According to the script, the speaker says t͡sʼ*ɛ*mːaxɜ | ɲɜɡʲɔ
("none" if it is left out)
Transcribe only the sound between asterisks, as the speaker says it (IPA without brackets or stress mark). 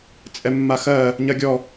ɛ